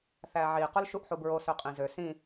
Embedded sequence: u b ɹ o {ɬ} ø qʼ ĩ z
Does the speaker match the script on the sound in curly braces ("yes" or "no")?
no